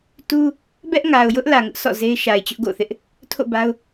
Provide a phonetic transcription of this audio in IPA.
t u˦ | b ɛ˦ ʔ ŋ a˨ ʊ̯ j ʊ˦ ʔ l ä˨ ŋ ʊ˦ ʔ s ɔ̰˦˨ z e˦ ɪ̯ ʃ a˨ ɪ̯ t͡ɕ ʊ˦ ʔ ɡ o̰˦˨ θ ɪ˦ ʔ | tʰ o̰˦˨ b a˦ ʊ̯

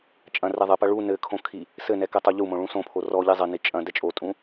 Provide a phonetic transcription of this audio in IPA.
t͡ʃʼ ɐ̃ r ɛ ðˤ ɘ p ɐ ɭ u n ɘ kʰ õ kʰ i | s ɘ n ɛ k ɛ tˤ o ʎ u m õ ɭ ũ s õ pʰ o r ɔ ʎ i zˤ ɘ n i t͡ʃʼ ɐ̃ d ɛ t͡ʃʼ o tʼ ũ

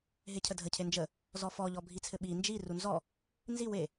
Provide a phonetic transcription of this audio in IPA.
ɦ e cʰ ə dʱ ə cʰ e n d͡ʒ ə | z ɔ f ɔ ʎ ɔ bʱ i t͡sʰ ɘ ɓ i n d͡ʒ i r u n z ɔ | n z i w e

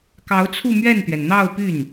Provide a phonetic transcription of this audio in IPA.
k ɑ˧˥ ʊ̯ t͡sʰ u˥˧ m ɥ ɛ˥˩ n t̪ ɥ ɛ˩ n n̪ ɑ˥˧ ʊ̯ p y˥˩ n

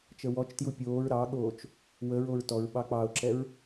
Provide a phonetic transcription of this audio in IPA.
t͡ʃ ə w ɔ t͡ʃ t j u pʲ oː ɹ ɾ ɑ ɠ oː t͡ʃ | w ə ɹ o ɹ t ɔ ɹ ɓ ɑ k͡p ɑ ʊ̯ ǁ ɛ ɹ

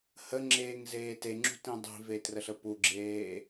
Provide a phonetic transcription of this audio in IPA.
h ə ŋ͡ǁ eː ŋ z eː t e ŋ͡ǁ ṳ t ĩ dˤ i̤ v e t r ə ɬ ə p u ɡ͡ǁ eː

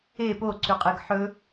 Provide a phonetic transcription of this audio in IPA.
e p o ǀ ʉ qʼ ɨ ɡ ħ ɵ

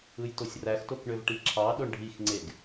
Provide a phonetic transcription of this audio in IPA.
ɯ j t o sʲ r æ x t o k ɳ ø v ʈ i ǁʰ ɑ ɗ o ɳ ɖʱ i x ŋ͡ǀ e ɡ

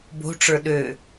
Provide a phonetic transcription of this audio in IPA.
b o̤ ʈ͡ʂ ə˞ ɗ ø

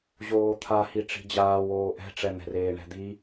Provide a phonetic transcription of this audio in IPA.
ʑ oː t̪ʰ a h i ʈ͡ʂ i̤ d͡ʑ aː w oː ʔ ɛ̤ ʈ͡ʂ ɛ n̪ ɛ̤ r eː ɳ ɛ̤ d̪ i

